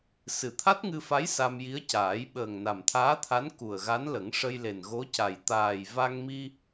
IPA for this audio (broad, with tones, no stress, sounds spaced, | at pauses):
s ɨ˨˩ t̪ʰ a˦˥ t̚ ŋ ɨ˧ f a˧˥ j s a˧ m j i˧˥ ə̯ c aː˨˩˦ j ɓ əː˨˩ ŋ n a˨˩ m t̪ʰ aː˧˥ t̪ʰ a˧˥ n k u˨˩ ə̯ ɣ a˧˥ n l ə˨˩˦ ŋ ʂ ə˧ j l e˨˩ n ɣ o˧˥ c a˨˩ j t̪ aː˨˩ j v a˧ ŋ m i˧